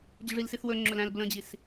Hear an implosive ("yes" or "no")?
no